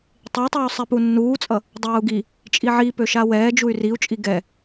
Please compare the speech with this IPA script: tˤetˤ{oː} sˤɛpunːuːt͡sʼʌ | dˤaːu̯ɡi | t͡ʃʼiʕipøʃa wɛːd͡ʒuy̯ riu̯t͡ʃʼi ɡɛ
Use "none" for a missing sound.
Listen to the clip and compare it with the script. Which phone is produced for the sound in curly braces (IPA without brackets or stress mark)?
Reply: uː